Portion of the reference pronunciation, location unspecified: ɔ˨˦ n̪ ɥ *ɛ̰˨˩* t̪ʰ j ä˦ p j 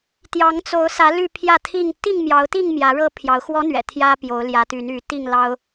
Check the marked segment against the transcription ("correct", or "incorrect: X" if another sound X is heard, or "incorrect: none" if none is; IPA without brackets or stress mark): correct